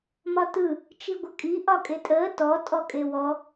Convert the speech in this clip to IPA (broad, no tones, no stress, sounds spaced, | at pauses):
m ɒ t ɯ | t͡ʃ i ɡʷ ə kʼ i ʔ ɒ kʼ e tʼ əː t ɔ tʼ ɔ kʼ e w ɔ